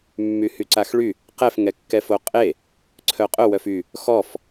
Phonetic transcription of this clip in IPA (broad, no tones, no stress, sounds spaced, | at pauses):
mː y h y ǀ a x ɭ y | q ɛ f ŋ ɛ kː ɛ f o qʼ e | ǀʰ œ qʼ ʊ w œ f y | x ɔ f